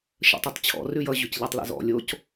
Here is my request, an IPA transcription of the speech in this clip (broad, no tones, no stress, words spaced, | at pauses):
ʃə̰tˤʉtˤt͡ɕʰɔ̰ rʉjʌ ʑʉcʎɛtˤlḭzɔ̰ lʲoc